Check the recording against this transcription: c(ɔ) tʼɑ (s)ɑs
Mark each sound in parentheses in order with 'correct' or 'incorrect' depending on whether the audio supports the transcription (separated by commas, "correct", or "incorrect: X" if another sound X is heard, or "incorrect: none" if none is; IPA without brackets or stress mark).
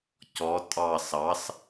correct, correct